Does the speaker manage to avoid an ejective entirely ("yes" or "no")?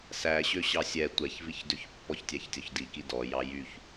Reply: yes